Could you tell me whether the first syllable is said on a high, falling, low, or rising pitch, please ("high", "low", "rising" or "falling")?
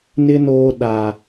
high